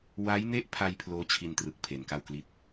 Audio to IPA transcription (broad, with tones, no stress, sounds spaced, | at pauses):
w a˦˥ j n e˥˩ ʔ pʰ a˧ j pʰ l oː˦˥ t͡ɕʰ i˧ n t r ɯ˨˩ k̚ pʰ e˧ n k a˥˩ w k l i˥˩ t̚